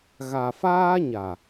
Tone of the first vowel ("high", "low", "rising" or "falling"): low